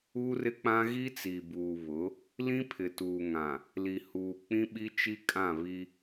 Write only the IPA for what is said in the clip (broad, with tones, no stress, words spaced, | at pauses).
u˦rɪ˦k͡pã˦ ɣi˦t͡si˨buː˨βʊ˨˦ | lĩ˦ pʰɪ˨tuː˨ŋã˨ | li˨huː˨ k͡pĩ˦ɓi˦t͡ʃi˦ kʼã˦˨ βi˦